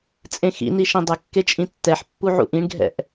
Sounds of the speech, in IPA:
t͡sʼ ẽ x ḭ n i ʃ ẽ dˤ ə kː e t͡ʃʼ ĩ tː ɛ ħ pː u ʕ ṵ ʔ ĩ ɳ ɡʱ ɛ̰ ʔ

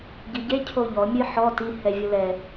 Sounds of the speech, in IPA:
ɟ i ɟ e cʰ o ʎ ɔ mʲ ɨ ħ ɔ t i h ɛ vʲ o l ɛ

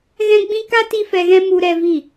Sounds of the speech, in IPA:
ɣ ɛ̃˦ ɡ͡b ĩ˦ k a˦ t i˦ f ɛ˧ ɣ ɛ̃˦ m u˧ ɾ ɛ˧ v i˦˨

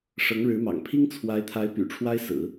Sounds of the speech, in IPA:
ʂ ɤ˧˥ ŋ ɻ ɻ̩˧˥ m ɑ̰˨˩ ŋ pʰ i˥ ŋ t͡sʰ w a˧˥ ɪ̯ t̪ʰ a˧˥ ɪ̯ p y̰˨˩ ʈ͡ʂʰ w a˥ ɪ̯ s ɹ̩˨˩˦

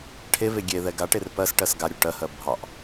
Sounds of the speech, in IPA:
ʈʰ e v e ɡʲ e ð ɛ ɡ a ʈ e r p ɜ s ʈ ɜ s ɡ a ɾʲ u ʈ ɜ h ɜ bʱ ɑ ʔ

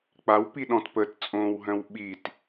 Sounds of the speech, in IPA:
k͡p a w p i ɗ ɔ̃ t p ə t t͡sʼ õː w ɦ œ̃ w ɓ i t

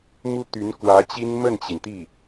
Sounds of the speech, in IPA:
m u˥ t̪ y˧˥ n k w ä˧˥ t͡ɕ i˥ n m ə˥˩ n t͡ɕ i˩ n t̪ i˥˩

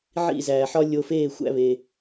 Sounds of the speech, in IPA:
ʕ ḭ˦˨ z æː˨ ħ ɒ˦ lʲ o˧ f eː˦˨ xʷ æ̰˦ β e˧

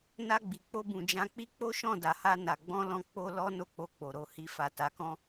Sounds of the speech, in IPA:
n a˧ ɡ͡b i˨ k͡p o˧ b ũ˨ d͡ʒ ã˧ k͡p i˦ k͡p o˦ ʃ ɔ̃˦˨ d a˨ h a˧ n a˨ ɡ͡b ɔ̃˧ l ɔ̃˧ k͡p o˦ l ɔ˦ n o˦˨ k͡p o˧ k͡p o˨ ɾ o˨ h i˨ f a˨ t a˨ k ɔ̃˧

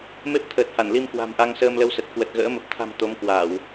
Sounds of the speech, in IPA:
m e˦˥ p̚ t̪ʰ əː˨˩ t̚ h a˧˩ n l i˧ m k w a̤˨˩ m ʔ a˧ ŋ s əː˧ m l ə˧ w s ə˨˩ t̚ k w ə˨˩ t̚ ɣ ə̰ː˧˥ m ə˨˩ p̚ t̪ʰ a̤˨˩ m t̪ o˨˦ m k w a˧˩˨ w

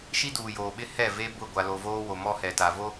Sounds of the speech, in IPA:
ʃ i˦ d uː˨ j oː˨ ɓ ɪ˦ h ɛ˦˨ v e˦ b ʊ˦˨ ɡʷ a˨ l o˨ v oː˦ w o˨ m ɔ˦ h ɛ˨ t a˨ v o˦

